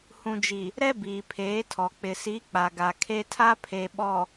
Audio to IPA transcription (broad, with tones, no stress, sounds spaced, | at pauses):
h ũ˨ d͡ʒ i˨ | ɾ ɛ˦ b iː˨ pʰ eː˨˦ tʰ ɔ˨ k͡p ɪ˨ s i˨˦ k͡p a˨ ɡ a˨ kʰ e˦ tʰ a˦ pʰ e˨ ɓ ɔ˨